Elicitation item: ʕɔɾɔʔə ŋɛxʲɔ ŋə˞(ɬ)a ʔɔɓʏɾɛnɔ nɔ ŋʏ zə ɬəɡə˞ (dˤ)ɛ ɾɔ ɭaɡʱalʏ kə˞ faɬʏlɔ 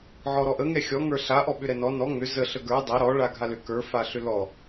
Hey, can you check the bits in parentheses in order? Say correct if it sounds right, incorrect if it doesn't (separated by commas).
correct, correct